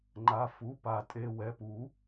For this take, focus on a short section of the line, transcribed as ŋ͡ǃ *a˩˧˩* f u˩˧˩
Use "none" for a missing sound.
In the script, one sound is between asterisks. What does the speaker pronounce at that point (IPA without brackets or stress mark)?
a˩˧˩